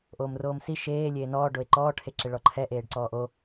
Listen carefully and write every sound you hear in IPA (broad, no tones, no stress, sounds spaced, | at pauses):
ʔ oː m r oː m s i ʃ eː lʲ eː n ɔː ɖ o e̯ ǃ ɔː ʈʰ e ǁ ɪ ɭ ɔ ǃʰ ɛ ʔ eː ɖ ǀ ɔː ʔ o